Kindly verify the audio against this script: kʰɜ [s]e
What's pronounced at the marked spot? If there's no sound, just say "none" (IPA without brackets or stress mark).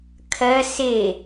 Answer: s